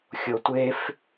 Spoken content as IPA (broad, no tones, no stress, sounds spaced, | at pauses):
xʲ o tʷ e f